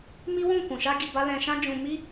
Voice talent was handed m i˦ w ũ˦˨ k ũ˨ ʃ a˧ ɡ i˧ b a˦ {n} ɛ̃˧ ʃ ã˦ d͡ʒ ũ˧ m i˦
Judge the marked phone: incorrect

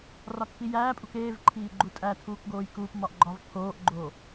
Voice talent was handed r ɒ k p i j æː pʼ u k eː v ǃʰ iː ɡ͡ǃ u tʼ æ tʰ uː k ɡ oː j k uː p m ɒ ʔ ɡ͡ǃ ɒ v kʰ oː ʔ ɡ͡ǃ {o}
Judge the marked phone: correct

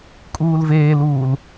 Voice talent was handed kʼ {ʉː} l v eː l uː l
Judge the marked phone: incorrect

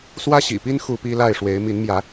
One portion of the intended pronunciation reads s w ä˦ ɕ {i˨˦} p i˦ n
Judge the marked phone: incorrect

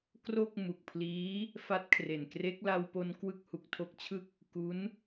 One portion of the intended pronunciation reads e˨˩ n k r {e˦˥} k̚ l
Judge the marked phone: correct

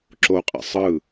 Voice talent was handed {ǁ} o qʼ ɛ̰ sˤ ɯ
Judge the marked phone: correct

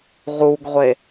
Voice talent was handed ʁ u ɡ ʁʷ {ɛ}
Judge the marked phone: incorrect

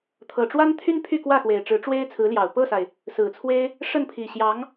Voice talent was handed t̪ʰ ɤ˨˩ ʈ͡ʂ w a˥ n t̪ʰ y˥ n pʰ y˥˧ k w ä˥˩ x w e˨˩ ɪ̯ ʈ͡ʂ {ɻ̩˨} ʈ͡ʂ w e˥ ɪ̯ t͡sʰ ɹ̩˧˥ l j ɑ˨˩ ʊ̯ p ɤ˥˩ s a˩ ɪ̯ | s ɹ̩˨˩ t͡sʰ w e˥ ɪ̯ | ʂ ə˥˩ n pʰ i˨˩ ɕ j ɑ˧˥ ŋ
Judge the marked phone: incorrect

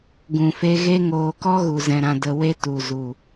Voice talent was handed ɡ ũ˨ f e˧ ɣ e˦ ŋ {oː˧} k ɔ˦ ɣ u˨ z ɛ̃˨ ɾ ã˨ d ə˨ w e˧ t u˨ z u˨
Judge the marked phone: correct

